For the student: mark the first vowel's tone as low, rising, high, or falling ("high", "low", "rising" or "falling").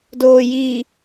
low